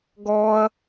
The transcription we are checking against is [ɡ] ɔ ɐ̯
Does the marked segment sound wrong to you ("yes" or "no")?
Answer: no